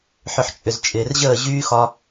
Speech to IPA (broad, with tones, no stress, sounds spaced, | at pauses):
ħ ʏ˨ ħ t͡ʃʼ ʏ˨ z t͡ʃʼ ɪː˨ r ʑ əː˦˨ ʑ yː˦ x ɒ˦